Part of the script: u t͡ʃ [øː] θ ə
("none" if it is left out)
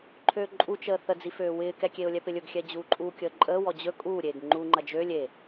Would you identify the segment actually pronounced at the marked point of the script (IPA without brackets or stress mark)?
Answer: əː